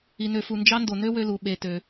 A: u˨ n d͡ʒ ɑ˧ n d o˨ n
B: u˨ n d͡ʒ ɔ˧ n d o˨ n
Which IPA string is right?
A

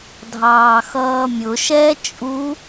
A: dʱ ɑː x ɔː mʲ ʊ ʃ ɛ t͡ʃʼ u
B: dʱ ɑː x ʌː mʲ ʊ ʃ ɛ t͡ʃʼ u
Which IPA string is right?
B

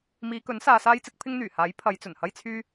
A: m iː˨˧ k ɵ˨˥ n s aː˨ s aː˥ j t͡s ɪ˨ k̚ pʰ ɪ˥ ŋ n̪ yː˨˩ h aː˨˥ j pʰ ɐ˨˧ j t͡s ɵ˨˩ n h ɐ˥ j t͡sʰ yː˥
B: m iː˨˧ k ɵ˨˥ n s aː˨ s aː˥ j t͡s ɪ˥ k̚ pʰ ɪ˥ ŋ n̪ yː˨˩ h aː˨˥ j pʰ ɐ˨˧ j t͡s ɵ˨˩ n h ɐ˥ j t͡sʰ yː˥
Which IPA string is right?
B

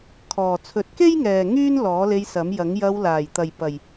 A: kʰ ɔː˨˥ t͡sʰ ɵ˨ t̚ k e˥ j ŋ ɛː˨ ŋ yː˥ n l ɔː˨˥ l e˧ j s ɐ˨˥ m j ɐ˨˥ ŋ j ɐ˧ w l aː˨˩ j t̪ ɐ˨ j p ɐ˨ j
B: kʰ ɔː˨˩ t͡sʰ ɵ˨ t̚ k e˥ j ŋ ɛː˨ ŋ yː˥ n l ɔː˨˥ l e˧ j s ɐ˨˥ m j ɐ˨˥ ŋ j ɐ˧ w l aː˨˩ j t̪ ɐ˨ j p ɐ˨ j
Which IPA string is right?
B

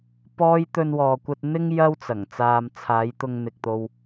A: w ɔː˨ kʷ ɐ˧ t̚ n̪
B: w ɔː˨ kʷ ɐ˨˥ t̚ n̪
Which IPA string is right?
A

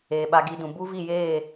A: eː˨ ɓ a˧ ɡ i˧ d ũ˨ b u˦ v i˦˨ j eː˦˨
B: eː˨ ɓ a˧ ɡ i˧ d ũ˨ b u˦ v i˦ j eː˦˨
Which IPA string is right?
A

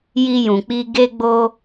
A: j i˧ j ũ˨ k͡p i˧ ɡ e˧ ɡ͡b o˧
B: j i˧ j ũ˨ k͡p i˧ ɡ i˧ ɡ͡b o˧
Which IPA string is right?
A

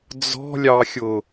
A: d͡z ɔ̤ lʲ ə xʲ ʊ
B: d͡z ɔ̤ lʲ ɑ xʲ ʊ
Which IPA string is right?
B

